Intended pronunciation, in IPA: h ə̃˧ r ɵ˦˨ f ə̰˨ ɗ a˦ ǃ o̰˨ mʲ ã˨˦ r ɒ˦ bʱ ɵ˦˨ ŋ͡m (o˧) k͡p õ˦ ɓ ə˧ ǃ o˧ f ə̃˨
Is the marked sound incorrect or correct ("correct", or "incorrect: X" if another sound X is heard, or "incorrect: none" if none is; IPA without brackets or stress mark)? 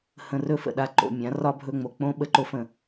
correct